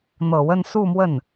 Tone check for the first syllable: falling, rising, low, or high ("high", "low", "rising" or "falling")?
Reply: low